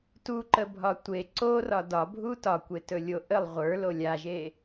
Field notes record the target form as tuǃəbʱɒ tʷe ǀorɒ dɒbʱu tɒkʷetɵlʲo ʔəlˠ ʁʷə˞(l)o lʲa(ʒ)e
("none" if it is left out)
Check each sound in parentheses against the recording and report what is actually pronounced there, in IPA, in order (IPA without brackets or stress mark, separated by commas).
l, ʒ